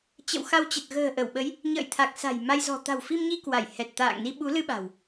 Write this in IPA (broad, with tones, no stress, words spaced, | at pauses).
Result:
t͡ɕə̰˧˨wxa˧wt͡ɕə˨˩t̚ ɣə̤ː˨˩ʔə˧˩wɓə˨˦j | ɲə̰ː˧˨jt̪ʰa˨˩k̚ sa̤˨˩j ma˧jzɔ̤˨˩ t̪a̤˨˩wfi˧mɲi˧ kwa˧˩j hɛ˨˩t̚ t̪a̰ː˧˨ŋni˧ ɓu˨˦lɨ˧ ɓa̤˨˩w